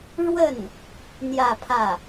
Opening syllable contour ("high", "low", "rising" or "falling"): falling